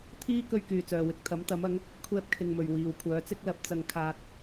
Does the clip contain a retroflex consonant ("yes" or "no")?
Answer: no